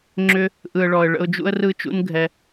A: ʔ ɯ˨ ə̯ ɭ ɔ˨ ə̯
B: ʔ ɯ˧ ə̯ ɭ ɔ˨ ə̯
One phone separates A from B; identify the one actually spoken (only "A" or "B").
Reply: A